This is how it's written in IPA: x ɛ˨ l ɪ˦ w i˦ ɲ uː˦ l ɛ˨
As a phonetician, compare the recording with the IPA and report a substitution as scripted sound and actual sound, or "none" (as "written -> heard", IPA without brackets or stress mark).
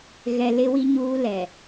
x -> ɣ